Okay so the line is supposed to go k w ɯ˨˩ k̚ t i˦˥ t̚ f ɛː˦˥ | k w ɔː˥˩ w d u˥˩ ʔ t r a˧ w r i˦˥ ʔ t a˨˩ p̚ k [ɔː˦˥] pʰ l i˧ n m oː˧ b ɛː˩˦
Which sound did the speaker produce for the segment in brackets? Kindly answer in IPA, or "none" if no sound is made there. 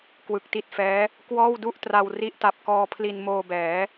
ɔː˧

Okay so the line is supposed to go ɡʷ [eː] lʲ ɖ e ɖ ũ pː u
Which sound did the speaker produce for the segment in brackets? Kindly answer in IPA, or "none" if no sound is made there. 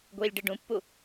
iː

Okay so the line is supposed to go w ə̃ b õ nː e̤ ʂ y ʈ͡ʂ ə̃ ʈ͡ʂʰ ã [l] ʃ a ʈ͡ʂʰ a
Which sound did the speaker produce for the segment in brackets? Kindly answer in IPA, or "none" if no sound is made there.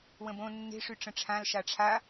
l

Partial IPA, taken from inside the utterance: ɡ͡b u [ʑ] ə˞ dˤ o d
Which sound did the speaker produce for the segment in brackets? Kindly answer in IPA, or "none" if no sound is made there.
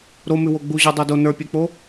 ʑ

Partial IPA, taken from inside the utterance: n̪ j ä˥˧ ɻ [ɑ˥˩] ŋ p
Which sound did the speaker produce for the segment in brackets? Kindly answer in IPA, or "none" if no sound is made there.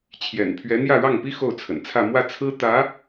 ɑ˥˩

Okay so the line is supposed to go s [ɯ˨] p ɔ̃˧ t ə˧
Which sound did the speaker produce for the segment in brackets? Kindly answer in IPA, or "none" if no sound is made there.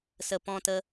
ə˨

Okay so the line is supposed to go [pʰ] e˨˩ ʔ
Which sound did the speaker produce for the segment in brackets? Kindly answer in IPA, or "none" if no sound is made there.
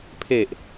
pʰ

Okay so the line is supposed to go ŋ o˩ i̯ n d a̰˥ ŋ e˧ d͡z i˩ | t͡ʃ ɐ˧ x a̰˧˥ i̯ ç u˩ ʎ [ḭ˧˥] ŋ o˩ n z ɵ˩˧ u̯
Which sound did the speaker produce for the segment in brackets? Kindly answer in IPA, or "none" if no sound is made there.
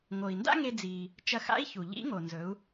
ḭ˧˥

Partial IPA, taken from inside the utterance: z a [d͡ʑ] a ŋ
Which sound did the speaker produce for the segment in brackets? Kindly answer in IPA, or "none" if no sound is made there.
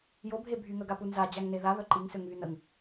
d͡ʑ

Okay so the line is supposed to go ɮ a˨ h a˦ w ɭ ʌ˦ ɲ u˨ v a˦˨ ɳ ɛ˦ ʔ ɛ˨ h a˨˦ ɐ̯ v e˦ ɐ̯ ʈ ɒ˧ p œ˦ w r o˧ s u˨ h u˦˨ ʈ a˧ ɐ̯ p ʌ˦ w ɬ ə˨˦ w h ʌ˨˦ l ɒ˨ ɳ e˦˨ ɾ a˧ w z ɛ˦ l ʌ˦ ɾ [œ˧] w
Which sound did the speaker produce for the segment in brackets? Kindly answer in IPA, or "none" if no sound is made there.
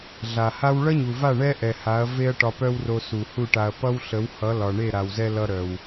œ˧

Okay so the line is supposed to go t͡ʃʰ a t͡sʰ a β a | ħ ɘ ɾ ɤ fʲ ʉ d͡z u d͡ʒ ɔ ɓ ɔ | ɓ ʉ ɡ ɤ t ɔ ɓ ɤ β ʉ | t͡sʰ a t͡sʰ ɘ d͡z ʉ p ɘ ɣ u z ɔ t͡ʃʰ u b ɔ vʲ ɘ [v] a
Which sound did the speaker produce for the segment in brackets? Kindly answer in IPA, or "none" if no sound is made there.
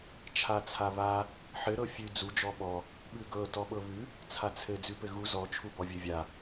vʲ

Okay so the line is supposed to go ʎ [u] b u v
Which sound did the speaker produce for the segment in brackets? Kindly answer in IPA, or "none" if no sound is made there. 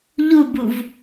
u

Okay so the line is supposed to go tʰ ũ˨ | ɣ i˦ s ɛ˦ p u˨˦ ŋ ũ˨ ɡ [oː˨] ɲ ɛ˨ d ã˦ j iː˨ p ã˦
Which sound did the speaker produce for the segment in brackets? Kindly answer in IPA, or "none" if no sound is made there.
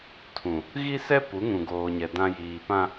oː˨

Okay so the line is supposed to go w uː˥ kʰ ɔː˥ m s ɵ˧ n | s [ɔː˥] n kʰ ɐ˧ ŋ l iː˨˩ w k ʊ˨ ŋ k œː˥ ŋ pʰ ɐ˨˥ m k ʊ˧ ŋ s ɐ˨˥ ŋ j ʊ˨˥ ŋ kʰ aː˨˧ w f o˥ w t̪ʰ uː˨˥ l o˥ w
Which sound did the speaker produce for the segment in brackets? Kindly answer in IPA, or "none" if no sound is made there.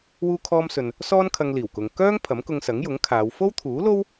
ɔː˥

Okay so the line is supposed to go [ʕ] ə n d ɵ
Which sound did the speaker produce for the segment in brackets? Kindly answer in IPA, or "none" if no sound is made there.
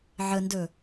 ʕ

